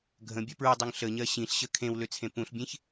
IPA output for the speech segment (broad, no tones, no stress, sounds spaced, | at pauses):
ɡʱ ə̃ bʲ ɜ p ɹ u dˤ u ŋ ɬ ə ɲ ɜ ɕ ĩ ɬ ɕ ə kʰ ẽ w l ø t͡sʰ ẽ p ũ ɬ bʲ ẽ ç